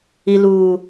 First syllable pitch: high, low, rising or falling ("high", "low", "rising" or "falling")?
low